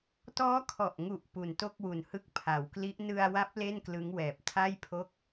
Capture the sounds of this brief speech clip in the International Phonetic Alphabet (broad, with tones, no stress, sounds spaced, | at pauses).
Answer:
t ɔː˦˥ kʰ ɔ˨˩ ʔ ŋ u˨˩ ʔ p u˨˩ n t o˥˩ k̚ w u˨˩ n h ɯ˦˥ k̚ pʰ a˩˦ w k l i˦˥ ʔ n ɯ˧ a̯ w a˦˥ p̚ l e˥˩ n k l ɯ˦˥ ŋ w ɛː˨˩ p̚ tʰ a˥˩ j pʰ o˥˩ k̚